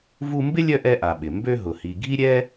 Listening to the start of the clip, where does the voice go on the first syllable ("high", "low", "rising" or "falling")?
high